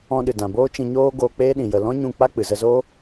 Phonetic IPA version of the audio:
ɔ̃˧ɗɨ˨ dã˨boː˦ t͡ʃĩ˧ɲoː˦ ɡoː˧k͡peː˦ ɗĩ˨jə˨ lɔ̃˦ɲũ˦˨ k͡pa˦k͡pɨ˨ zə˧zoː˦

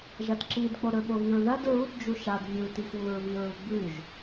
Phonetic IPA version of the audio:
ʒɐdǁid k͡poɾɵɓoɣiɹ ðɐd ɹud d͡ʒuʃad vʲutixwuɹ βiɹuɡ͡bʉʒ

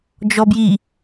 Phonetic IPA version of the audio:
d͡ʒɔbji

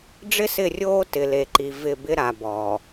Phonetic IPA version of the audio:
ɖ͡ʐɪ˦sɪ˦˨rʲoː˦ tɪ˨le˨ǃi˨ vɪ˦˨ bɪ˦ɾa˨ bɔː˨

